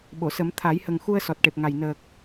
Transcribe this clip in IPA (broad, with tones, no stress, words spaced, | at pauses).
ɓo˨˩˨sə˨˩˦m t̪ʰa˨˩˦jhə˨˩ŋ xu˧ə̯ sɔ˨˩t̚ʈe˨˩p̚ŋa˨˩j nəː˨˩k̚